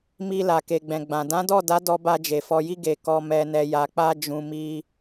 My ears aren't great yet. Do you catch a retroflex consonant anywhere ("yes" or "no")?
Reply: no